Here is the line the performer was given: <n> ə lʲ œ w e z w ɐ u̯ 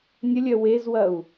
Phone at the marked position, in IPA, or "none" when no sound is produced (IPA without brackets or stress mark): nʲ